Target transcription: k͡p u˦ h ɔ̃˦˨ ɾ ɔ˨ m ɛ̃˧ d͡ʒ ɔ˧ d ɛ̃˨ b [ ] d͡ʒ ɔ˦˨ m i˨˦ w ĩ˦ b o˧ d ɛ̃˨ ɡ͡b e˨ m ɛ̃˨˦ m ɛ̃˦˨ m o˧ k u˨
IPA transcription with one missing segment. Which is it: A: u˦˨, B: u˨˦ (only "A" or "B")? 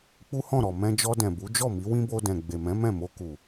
B